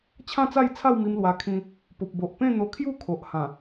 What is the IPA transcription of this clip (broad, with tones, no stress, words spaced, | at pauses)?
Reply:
t͡ɕʰã˥˧t͡sa˥˧jt͡sʰa˥˧wmi˧m lwa˧ kʰĩ˧ | po˨p̚bo˨ʔpẽ˥˧ n̪o˧kʰju˥˧kʰo˨ʔ hã˨˩